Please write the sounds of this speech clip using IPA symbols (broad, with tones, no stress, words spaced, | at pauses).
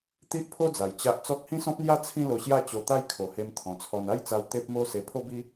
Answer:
t̪i˦ʔpʰo˦d͡za˨˩j t͡ɕa˦ʔ t͡sɔ˦k̚ hĩ˦sɔ̃˦p̚n̪ja˦ t͡sʰĩ˥˧lo˧ɕja˥˧ t͡ɕo˧t̪a˦jkʰo˨˩he˧m t̪ʰɔ̃˨˩t͡sʰɔ˧n a˦jt͡sa˧w t̪e˦p̚mo˦ se˧pʰo˦bi˦